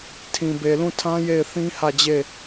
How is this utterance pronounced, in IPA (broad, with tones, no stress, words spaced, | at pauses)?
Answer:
tʰĩ˨be˨lũ˦˨tʰã˦ je˦˨ɪ̯θĩ˦hä˦˨d͡ʑe˦˨